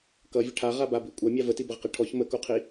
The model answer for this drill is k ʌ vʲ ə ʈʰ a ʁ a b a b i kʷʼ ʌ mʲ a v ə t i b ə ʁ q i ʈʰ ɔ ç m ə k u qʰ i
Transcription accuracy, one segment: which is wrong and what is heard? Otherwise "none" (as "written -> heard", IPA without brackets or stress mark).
none